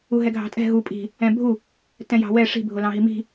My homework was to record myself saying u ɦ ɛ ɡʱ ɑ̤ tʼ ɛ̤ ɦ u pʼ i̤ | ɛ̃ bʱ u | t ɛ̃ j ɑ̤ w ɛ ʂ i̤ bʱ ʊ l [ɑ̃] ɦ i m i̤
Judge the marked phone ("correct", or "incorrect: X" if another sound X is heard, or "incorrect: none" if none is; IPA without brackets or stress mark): correct